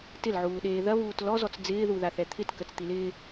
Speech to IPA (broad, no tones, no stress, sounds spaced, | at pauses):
t ɪ l ʕ uː ɗ eː ð ɐ β uː t l ɔ z ɔ t͡s d͡z ɪː ð u ð a θ ɛ t̪ʰ ɪ t k ə t͡s t̪ i l ɪː